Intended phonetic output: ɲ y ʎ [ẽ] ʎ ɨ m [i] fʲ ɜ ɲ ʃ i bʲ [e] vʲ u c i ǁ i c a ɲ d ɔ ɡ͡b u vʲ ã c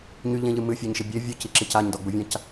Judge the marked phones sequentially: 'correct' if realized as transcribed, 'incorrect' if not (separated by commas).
correct, incorrect, correct